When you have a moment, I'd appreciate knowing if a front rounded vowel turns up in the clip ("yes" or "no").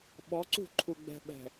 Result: no